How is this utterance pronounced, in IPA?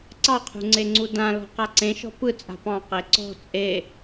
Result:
ǀɑqʰṳŋ͡ǀeŋ͡ǀu dãlɔ̤ qaǀẽʃɔ̤ pɯ t͡sʼa̤pɑ̃ qeǀɔ̤ t͡sʼe

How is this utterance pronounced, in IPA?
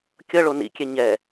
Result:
kʲʌɭo nḭkʲɛ ɲɛ

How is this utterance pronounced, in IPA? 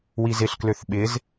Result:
wizɪɬkløθ ɓɪz

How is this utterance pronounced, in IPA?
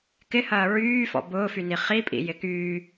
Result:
kɪhɐː ɹyːfɔ̰ bʊːfyni χipʼḭjɪ kyː

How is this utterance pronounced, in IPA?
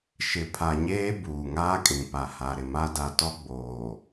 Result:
ʃɪ˨pʰa˨ɲeː˦ buː˨ŋaː˦kʼĩ˨ pa˨ha˨ɾɪ˨ma˦ da˨tɔ˦ɡ͡boː˨

